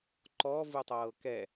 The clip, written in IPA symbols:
ǃ ɔ v ɯ tˤ ɤː k ɛ

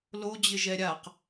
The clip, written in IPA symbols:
l o d͡ʑ ɪ ʒ ɛ ɾʲ a q

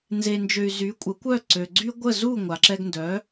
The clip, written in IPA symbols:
n z e˧ n d͡ʒ ø˧ y̯ z y˩˥ kʷʼ ə˩˥ kʷ œ˥˩ ǀ ø˩ ɡ͡ǀ y˥ ɡʷ ə˥˩ z u˥˩ ŋʷ a˩ ǁ ɛ˧ ɡ n d œ˩˥

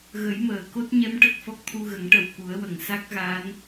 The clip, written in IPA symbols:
ɣ ə˨˩˦ j m əː˨˩˨ k o˦˥ t̚ ɲ ɛ˧˥ m ʈ ə˨˩ k̚ f ɔ˦˥ k̚ t̪ʰ u˧ ɣ ə˨˩˦ ŋ ʈ ə˨˩ w k u˨˩˦ ə̯ w ə˨˩˨ ŋ s a˦˥ k̚ ɣ a˧˥ n

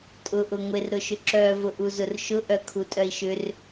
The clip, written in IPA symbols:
tʼ ʊ ʔ ʊ ŋʷ e r ɾ ʊ ʃ ʏ ǁ œ v ʊ ʔ u z ʊ r ʃ ʊ ʔ œ kʰ u tʼ œ i̯ ʃ ʏ r

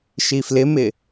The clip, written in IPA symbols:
ʃ i f l ɪ m ɪ

